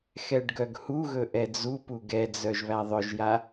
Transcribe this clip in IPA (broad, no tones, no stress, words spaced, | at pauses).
xɛɖɡœɡhuɣɵ ʔɛd͡zupu ɡɛd͡zœʒ βæðˤœʒja